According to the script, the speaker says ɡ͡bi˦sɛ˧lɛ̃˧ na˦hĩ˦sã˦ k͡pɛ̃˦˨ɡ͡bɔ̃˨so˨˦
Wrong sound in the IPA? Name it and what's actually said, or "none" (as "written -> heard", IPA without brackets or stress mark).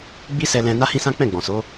none